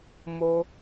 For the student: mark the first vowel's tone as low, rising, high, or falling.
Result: high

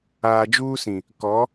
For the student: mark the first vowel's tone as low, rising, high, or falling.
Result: low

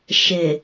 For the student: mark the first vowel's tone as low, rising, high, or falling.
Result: low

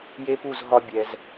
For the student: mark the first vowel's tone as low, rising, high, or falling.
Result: high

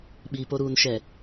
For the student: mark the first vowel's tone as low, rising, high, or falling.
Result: low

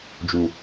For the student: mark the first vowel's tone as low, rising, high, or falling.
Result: low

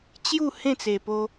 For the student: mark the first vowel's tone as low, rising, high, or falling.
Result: falling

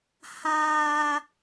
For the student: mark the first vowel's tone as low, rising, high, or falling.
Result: high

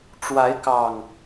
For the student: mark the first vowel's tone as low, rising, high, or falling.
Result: rising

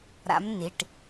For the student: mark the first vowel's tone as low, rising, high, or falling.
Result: rising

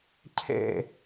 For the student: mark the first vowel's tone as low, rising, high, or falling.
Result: falling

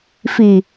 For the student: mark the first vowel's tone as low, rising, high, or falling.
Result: low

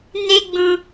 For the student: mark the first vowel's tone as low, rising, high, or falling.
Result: high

